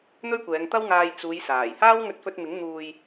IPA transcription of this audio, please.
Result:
n̪ ɵ˥ ɥ kʷ ɛː˨˧ ŋ t̪ ɐ˥ w ŋ aː˧ j t͡s uː˨˧ j s aː˨˩ j h aː˥ w ŋ ɵ˧ t̚ f ɵ˧ t̚ m ɪ˨˥ ŋ n̪ uː˨ j

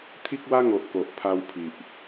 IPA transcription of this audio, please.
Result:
t̪ʰ i˦ k̚ w a˦ ŋ o˨ ʔ k o˨ ʔ pʰ a˧ w pʰ i˨ ʔ

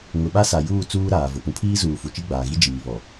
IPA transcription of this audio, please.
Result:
ŋ ʊ˨ ɓ a˦ s a˨ j uː˦˨ t͡s uː˦ ɾ aː˨ v ʊ˨ p ũ˨ pʰ iː˦ z uː˨ f u˨ t͡ʃ i˦ ɡ͡b aː˨ ɣ i˦ d͡ʒ iː˨ β ɔ˨

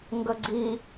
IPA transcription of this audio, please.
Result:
ŋ ɡ ə ɡ͡ǀ i

